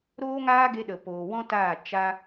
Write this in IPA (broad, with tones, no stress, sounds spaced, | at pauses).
ɾ oː˦ ŋ aː˦ ɡ e˧ ɗ ə˨ p oː˨ w ɔ̃˦ t aː˦˨ t͡ʃ a˦